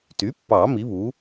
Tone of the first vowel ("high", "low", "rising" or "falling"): rising